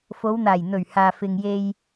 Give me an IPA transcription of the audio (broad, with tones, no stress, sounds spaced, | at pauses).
f o˨˧ w n̪ aː˨˩ j n̪ ɵ˨˩ ɥ h aː˨ f ɪ˨ ŋ j e˧ j